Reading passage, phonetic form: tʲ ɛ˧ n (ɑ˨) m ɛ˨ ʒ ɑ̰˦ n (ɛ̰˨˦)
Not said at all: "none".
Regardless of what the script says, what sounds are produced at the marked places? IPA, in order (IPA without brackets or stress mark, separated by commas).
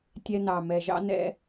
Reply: ɑ˨, ɛ̰˦